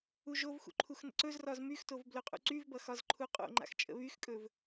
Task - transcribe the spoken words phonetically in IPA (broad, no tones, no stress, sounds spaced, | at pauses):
u ʒ o v x ṵ ǃʰ u x n ə̰ ǀ ɵ z r ɒ z m y x t o v b l ɵ qʼ ṵ ǀ y v b ʌ x ɒ z ǃʰ u qʼ o̰ ŋ͡ǃ a̰ x t͡ʃʼ ə̰ β y x kʼ ɵ v